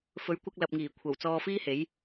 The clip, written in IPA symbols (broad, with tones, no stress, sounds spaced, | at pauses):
f ɵ˨˥ ɥ kʷ ɐ˧ k̚ l ɐ˨ p̚ ŋ iː˨˩ kʷʰ ɐ˨˩ w t͡s ɔː˧ f iː˥ h e˨˥ j